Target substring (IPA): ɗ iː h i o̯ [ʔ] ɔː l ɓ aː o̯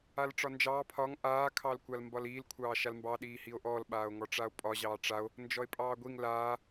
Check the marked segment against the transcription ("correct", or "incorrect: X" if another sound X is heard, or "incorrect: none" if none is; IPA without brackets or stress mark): correct